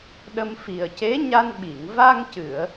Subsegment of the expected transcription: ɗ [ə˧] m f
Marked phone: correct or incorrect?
correct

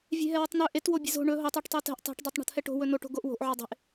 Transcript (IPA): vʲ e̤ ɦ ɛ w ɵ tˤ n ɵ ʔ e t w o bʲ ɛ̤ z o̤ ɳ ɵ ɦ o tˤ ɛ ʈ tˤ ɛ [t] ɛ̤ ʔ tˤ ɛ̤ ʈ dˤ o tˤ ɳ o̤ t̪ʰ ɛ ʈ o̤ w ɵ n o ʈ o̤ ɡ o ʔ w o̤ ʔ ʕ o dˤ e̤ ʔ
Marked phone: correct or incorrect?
correct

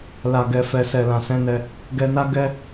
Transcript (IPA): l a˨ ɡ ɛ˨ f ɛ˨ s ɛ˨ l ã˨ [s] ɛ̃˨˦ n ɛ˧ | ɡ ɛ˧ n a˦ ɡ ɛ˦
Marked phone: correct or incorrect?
correct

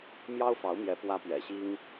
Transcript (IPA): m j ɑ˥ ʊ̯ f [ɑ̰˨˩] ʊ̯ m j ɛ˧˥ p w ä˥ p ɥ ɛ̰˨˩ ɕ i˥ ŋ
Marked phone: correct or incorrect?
incorrect: ɑ˧˥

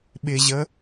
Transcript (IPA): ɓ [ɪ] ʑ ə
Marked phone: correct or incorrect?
correct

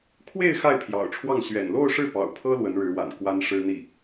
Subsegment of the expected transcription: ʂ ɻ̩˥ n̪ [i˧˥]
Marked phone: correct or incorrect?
incorrect: i˥˩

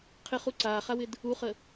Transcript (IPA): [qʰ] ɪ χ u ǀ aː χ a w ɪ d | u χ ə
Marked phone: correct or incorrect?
correct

